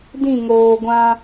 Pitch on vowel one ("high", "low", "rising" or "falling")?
falling